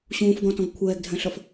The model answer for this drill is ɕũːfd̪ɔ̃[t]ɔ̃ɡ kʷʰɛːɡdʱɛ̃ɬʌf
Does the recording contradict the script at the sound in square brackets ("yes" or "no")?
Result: no